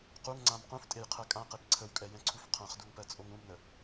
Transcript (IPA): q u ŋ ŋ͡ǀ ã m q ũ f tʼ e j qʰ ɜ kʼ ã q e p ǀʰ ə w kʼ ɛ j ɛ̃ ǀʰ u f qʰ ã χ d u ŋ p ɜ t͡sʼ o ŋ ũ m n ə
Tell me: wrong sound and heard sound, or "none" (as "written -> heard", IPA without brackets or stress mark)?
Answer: none